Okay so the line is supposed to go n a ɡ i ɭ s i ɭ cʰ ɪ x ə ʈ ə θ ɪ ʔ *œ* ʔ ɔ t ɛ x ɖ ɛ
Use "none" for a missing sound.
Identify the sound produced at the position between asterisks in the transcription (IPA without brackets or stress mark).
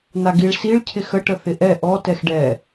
ɛ